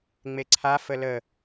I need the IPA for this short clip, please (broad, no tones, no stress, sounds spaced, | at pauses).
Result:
ŋ͡m e ǀʰ a f ə l ə